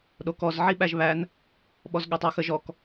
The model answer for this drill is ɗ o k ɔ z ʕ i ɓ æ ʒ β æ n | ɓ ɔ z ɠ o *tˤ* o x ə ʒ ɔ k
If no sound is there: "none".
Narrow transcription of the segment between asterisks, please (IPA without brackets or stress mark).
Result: tˤ